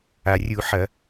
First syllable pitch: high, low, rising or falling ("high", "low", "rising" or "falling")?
low